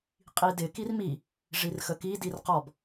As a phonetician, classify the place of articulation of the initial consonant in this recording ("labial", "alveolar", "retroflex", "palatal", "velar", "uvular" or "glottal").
uvular